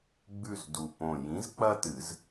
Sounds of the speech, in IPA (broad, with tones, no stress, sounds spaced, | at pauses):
ɡ͡b ʉ˦˨ z d u˨˩ p õ˨˩ j ĩ˨˥ z k͡p ɐ˦ t ɨ˨˩˦ z